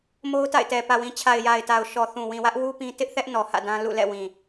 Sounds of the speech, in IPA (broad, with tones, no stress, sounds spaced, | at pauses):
m o˦ ʊ̯ t a̰˦˨ ɪ̯ t ɛ˨ p ä˨ w ĩ˨ t͡ɕʰ a˨ ɪ̯ j a˨ ɪ̯ t a˨ ʊ̯ ʃ ɔ˨ θ ũ˨ w ĩ˨ w ä˦ ʔ w u˦ p ĩ˦ t ɪ˦ ʔ θ ɛ˦ ʔ n ɔ˨ h ä̰˦˨ d ã˦ l ṵ˦˨ l ɛ̰˦˨ w ĩ˨